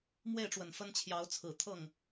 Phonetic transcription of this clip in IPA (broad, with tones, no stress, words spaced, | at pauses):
mwe˥˩ɪ̯ʈ͡ʂwə˨˩n fə˥nt͡ɕʰjɑ˧˥ʊ̯t͡sʰɹ̩˨˩ t̪ʰɤ˥˩ŋ